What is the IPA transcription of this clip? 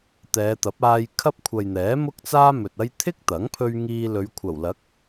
t̪ ɛː˨˧ t̪ ɐ˨˥ p̚ aː˧ j kʰ ɐ˥ p̚ kʷʰ ɐ˨ j n̪ ɛː˨˥ m ʊ˥ k̚ t͡s aː˥ m ɵ˨ t̚ ɐ˥ j t̪ʰ ɪ˥ k̚ t̪ ɐ˨˥ ŋ pʰ ɵ˧ ɥ ŋ iː˧ l ɵ˨˧ ɥ kʷʰ ɐ˨˩ w l ɐ˨˥ k̚

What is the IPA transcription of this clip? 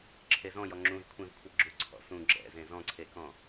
ǁʰ e z ɔ̃ j ɔ ŋ͡ǁ ũ z kʷʰ ẽ v kʷʰ ʌ ɡ͡ǁ u ǀʰ ɔ̰ s ũ ɡ͡ǁ ɛ̰ z ẽ z ɔ̃ ǀʰ e k ɔ̃

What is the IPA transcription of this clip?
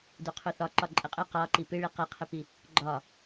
d u qʰ u θ ɒ ǃ ɒ ǃʼ ɨ qʼ ɨ q ɒ ǃ i p ɨ ɭ i q i qʰ ɨ p i | ɡ͡ǃ ɒ

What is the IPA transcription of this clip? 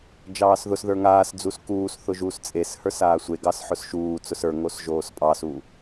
d͡ʒ ɑː s ð ʊ s ð ə˞ ŋ aː s d͡z u s k uː s θ ʊ ʒ uː s t͡sʼ e s h ə˞ s aː sʷ e ɡ ɑ s ħ ʊ s ʃ uː t͡s ʊ s ə˞ ŋ o s ʒ oː s pʼ ɑ s u

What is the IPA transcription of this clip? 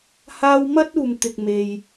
h aː˥ w m ɐ˥ t̚ uː˨ m t̪ ɪ˨ k̚ m e˨ j

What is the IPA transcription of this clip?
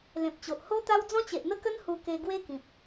l ẽ˨ p̚ t͡ɕ o˨ ʔ h o˦ t̪ a˦ w d͡z ɔ̃˦ t͡ɕ e˨ ʔ n̪ ə˦ k ə˦ n h u˧ k e˧ ɡ w e˦ k ĩ˨ p̚

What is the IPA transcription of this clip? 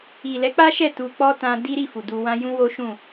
i˨ l ɛ˨˦ k͡p a˦ ʃ ɛ˦˨ t u˧ k͡p ɔ˦ t ã˧ d i˦ ɾ i˦˨ f u˨ d u˧ w ã˦ j ũ˦ w o˦ ʃ ũ˦˨

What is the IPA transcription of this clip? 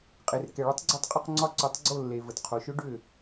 qʼ e˩ r k ɛ˩ ɭ ʏ˩˥ tˤ ɡ͡ǀ ɒ˧ tˤ qʼ ʏ˥˩ q ŋ͡ǀ ɒ˧ ǀ o˩˥ tˤ ɡ͡ǀ o˥˩ lː e˩ v ə˩ t qʰ o˩ ʃ ʊ˧ ɖ ʏ˥˩

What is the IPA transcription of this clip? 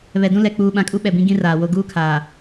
β ɛ˨ d ũ˦ l ɛ˨ k͡p uː˨ ɓ ã˨ kʼ u˦ ɓ ɛ˨ b ĩ˦ ɡ ĩ˦ r aː˨ w o˦ ɡ uː˦ kʰ aː˨

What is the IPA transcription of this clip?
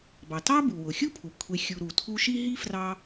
b ɑ˩ t ɑ˦ b u˩ w ʊ˩ xʲ u˥ pʰ u˩ kʷʰ e˨ xʲ u˨ ɾ u˩ tʰ u˦ ʃ i˥ ɦ i˥ f r ɑ˦

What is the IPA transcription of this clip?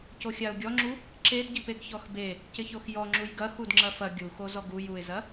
c o xʲ a ʊ̯ ɡʲ ɔ ŋ͡ǁ u | ǁ e d ɟ i p e ɡ ç ɔ x b e | c ɪ ç o x j ɔ ŋ͡ǁ u j ɡ ɐ x u d ŋ͡ǁ ɐ f ɐ ɡʲ u x o z ɔ ɡ u j u ɪ̯ z ɐ

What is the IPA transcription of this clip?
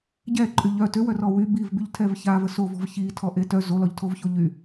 ɟ ɛ ǃʼ y ʎ œ t ø w œ r ɔ w y b i v b y ʎ tʰ ɛ v ç a v ə s o v ɔ̤ v ç i tʰ ɔ ʔ e t œ z o l ɔ ʎ tʰ o v ç o ʎ y

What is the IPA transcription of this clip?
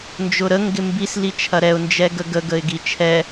n d͡ʒ ʊ ɾ ə ŋ ɡ ɪ m b i s l i t͡ʃʰ ɐ ɾ ɛ ʊ̯ n d͡ʒ ɛ ɡ ə ɡ ə ɡ ə ɪ̯ ɡ i t͡ʃʰ ɛ

